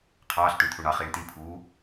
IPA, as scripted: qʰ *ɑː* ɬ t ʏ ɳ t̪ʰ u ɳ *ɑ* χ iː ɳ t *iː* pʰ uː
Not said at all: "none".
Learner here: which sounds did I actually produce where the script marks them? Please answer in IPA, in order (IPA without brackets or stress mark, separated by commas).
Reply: ɑː, ɑ, i